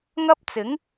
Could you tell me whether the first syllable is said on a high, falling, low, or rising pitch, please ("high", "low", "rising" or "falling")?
high